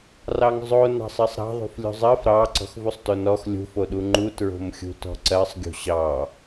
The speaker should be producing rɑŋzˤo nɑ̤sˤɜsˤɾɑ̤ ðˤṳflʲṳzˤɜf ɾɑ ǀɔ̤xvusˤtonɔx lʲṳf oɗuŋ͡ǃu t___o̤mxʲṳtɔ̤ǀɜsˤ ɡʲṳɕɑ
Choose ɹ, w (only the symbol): ɹ